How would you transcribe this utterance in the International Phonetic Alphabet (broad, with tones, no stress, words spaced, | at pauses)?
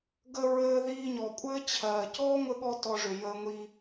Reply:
ɡə˧ɹɘː˧ ðiː˧ɲɔ˨kʷʼɘː˦ t͡ɕʰɜː˨ cɔː˦ŋʷɘ˧ɠɔ˧ tɔ˧ʐʏ˨ jəː˧ŋʷi˧